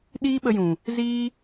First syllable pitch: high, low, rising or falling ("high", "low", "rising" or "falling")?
high